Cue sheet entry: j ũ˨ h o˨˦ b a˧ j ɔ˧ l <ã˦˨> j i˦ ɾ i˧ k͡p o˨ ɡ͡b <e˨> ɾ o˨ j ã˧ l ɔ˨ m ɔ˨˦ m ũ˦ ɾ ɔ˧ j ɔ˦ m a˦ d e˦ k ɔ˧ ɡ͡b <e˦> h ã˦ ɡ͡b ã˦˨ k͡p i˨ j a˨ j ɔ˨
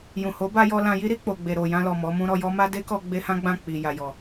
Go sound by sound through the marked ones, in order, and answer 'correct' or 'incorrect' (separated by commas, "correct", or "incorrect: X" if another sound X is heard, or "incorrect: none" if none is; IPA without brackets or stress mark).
incorrect: ã˧, correct, correct